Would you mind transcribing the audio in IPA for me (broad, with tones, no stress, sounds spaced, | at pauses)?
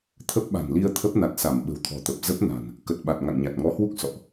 t̪ʰ ə˦˥ p̚ ɓ a̤˨˩ n l i˧ ə̯ t̪ʰ ə˦˥ p̚ n a˨˩ t̚ s a˧˩ m ɓ ə̤˨˩ w t̪ʰ ɔ̤˨˩ t̪ ə˨˩ p̚ z ə˦˥ p̚ n a̤˨˩ n | k ə˨˩ t̚ ɓ a˨˩ t̚ ŋ a̰˧˨ ŋ ɲ a˨˩ t̚ ŋ ɔ˨˦ h w u˦˥ k̚ s ɔ̰˧˨ ʔ